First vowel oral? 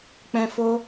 no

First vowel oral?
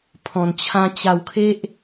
no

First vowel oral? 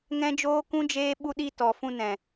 no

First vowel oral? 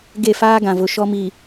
yes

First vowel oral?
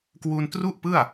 yes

